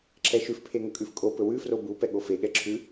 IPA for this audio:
ǁʰɛʃʉf pʰeŋɵkʼʉfkʼo pɵwʉ frobu pɛɠofe ɠɛǁʰʉ

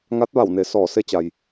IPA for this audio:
ŋa˧˥t̚ʋa˧˩wne˩ sɔː˧˩se˧t͡ɕa˩j

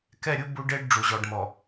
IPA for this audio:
kɛ˦˨ɾʲu˦ bu˦ɖe˦ɖ ɖ͡ʐu˨ʑɔ˨ɖmɔ˨

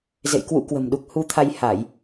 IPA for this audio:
zḛ˧˨jkwṵ˧˥kwə̤˨˩m ɗu˨˩k̚hu˧t̪ʰa˧jha˧˩˨j

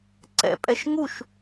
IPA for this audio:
ǀɛ̰pʼɛʃ ŋuʃ

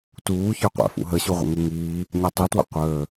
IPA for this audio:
tuːçə˞qʷæ̰ fṵɦəɕuʁʷə̰ ŋuŋiː | ɲætˤitwə̰ qʷəː

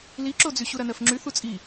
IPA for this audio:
liǁod͡zy ɕuɾɐnɜfŋ͡ǁy θut͡sʼi

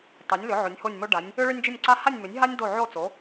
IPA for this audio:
tˤi˨˥nʲlʏ˨˥ ʕo˨˥nʲho˥˧nʲmo˥ɖa˨˥nʲ | ʏ˥ ɭʏ˥nʲd͡ʒʏ˥˧nʲǀa˥ ha˥˧nʲmʏ˨˥nʲɦa˥nʲ do˥˧ʕo˥˧t͡so˨˥

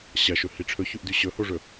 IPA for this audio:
ɕɐʃɵhi ʈ͡ʂʰɵçʉʔdʉ ɕɵhoʐɵ

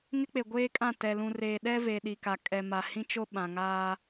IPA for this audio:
ŋɪ˦k͡pe˨ ɡʷeː˦kʼã˦˨ tɛ˨lũ˨reː˨ ɗɛ˦ve˨ ɗi˨ka˨ kʼɛ˨ ma˨hĩ˦t͡ʃo˦ ɓã˨ŋaː˦

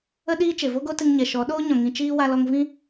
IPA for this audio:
ə˧ɗiː˧ t͡ʃe˨vo˦ɡo˦ tɨ˧ŋɲɛ˨ʃɔ˨˦ ɗoː˦ɲɔ̃˨ ŋĩ˧ t͡ʃiː˧ wa˧lɔ˧ŋ vĩ˦

